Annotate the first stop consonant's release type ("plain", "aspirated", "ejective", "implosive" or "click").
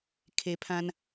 aspirated